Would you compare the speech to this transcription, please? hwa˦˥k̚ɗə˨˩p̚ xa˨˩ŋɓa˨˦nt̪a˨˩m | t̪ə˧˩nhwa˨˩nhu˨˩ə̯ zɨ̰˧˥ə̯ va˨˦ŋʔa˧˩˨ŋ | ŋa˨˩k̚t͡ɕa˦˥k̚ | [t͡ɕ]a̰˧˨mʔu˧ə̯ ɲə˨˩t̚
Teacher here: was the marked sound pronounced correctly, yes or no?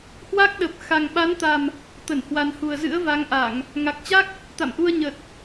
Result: no